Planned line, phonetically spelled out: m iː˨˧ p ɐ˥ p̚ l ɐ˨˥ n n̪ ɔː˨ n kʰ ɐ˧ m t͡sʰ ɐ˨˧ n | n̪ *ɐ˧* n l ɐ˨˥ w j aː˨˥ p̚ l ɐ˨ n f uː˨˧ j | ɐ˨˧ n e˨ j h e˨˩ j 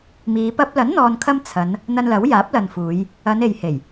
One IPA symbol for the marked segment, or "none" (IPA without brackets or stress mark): ɐ˧